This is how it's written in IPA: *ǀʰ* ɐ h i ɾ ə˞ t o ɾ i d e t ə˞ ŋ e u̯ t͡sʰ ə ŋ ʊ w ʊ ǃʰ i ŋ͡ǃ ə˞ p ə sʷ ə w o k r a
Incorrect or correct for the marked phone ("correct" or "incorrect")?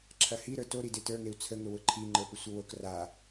incorrect